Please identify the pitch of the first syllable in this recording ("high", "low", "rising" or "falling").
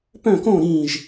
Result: falling